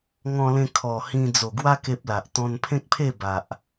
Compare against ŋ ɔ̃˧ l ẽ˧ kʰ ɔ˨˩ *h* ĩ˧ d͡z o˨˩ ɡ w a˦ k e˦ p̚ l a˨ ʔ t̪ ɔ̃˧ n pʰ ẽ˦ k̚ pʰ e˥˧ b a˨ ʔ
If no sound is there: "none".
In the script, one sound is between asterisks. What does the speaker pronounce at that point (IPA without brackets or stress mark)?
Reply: h